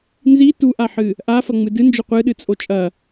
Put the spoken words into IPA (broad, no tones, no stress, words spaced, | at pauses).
nzi tuʔaħɨ | ʔafɐŋ͡mɨ dɨnd͡ʒɵ qʷɨɗɨt͡sʼo t͡ʃʼɐ